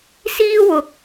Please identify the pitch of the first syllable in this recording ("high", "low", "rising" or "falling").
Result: high